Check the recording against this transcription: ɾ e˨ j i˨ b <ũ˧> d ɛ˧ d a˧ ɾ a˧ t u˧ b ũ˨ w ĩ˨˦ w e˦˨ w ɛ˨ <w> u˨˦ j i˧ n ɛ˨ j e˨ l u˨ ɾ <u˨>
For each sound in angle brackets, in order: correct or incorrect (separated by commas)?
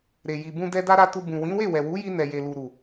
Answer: correct, correct, correct